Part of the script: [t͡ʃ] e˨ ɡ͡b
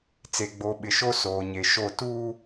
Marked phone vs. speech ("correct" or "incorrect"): incorrect